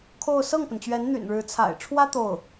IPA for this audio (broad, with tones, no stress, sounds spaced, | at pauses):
kʰ o˥˧ ʊ̯ s ɤ˥˩ ŋ p ə˩ n t͡ɕ ɥ ɛ˧˥ n n̪ y̰˨˩ n ɻ ɻ̩˧˥ t͡sʰ a̰˨˩ ɪ̯ ʈ͡ʂʰ w ä˥ t̪ o˥˩ ʊ̯